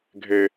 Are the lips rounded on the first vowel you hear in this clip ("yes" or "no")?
no